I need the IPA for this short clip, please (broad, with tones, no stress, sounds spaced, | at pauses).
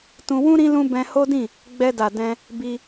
t ũ˧ w ũ˦ ɾ ĩ˦ l ũ˦ b ɛ̃˧ h o˦ d ĩ˦˨ | ɡ͡b ɛ˧ d a˨ d ɛ̃˧ | b i˧